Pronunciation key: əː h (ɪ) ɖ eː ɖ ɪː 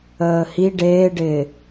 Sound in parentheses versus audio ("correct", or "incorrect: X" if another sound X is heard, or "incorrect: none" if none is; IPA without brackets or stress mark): incorrect: i